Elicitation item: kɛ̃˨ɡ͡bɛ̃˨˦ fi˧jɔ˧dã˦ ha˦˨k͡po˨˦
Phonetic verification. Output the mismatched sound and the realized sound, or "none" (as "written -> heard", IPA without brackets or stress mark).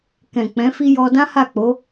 ɡ͡b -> k͡p